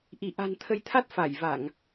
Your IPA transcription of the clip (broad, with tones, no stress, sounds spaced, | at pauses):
ʔ i˧˩ ʔ a̤˨˩ n t̪ʰ ə˨˦ j t̪ʰ a˦˥ t̚ f a˧˩ j v a˧˩˨ ŋ